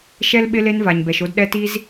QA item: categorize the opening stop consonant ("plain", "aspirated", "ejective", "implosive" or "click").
implosive